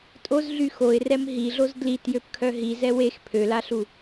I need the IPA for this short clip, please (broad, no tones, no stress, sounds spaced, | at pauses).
tʼ o z ɮ y x o ɪ̯ r ɛ m ɦ i ɮ o z d l i t j ø p kʰ œ ɦ i z ɛ w e x pʰ ø l a ɬ u